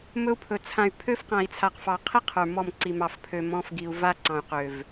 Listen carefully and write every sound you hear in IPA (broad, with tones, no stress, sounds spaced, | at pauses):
m ɵ˦ u̯ pʰ ɵ˨ t͡sʰ ã˨ y̯ pʰ ø˦ f q ã˨ i̯ t͡sʰ a˨ q f ɑ˨ qʰ i˦ qʰ ə˞˨ m ɔ˦˨ m ǀ i˨ m ɑ˨ f pʰ ø˨ m ɔ̃˦ f ɡ i˨ u̯ v a˦ ǀ ɑ̃˨ y̯ q ø˨ v